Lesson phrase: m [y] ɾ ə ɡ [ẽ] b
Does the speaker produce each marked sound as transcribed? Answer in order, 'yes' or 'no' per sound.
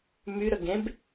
yes, yes

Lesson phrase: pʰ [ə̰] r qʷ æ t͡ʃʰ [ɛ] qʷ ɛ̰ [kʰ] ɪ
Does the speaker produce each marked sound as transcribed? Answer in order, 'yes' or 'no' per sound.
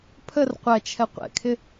no, yes, yes

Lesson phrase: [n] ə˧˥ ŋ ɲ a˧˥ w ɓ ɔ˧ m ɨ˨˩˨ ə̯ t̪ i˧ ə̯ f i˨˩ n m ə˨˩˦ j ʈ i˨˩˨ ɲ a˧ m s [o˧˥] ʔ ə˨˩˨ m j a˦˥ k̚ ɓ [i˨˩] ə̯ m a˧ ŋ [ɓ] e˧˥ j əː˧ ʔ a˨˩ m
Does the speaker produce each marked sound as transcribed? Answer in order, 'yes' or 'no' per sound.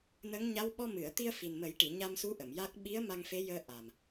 yes, no, no, no

